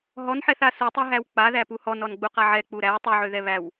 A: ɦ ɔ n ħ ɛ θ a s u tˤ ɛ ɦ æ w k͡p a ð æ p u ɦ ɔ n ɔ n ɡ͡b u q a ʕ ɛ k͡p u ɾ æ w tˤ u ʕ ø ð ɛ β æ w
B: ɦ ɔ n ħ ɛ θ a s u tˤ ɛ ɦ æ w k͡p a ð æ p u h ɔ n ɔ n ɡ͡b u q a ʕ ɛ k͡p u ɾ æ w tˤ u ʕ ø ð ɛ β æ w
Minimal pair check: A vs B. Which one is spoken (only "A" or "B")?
B